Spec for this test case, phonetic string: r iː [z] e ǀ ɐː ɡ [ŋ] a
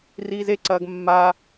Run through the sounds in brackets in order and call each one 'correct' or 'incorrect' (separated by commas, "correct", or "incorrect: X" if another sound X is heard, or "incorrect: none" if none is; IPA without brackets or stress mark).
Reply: correct, incorrect: mː